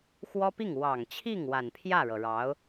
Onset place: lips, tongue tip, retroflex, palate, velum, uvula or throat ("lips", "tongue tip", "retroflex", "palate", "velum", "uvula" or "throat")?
velum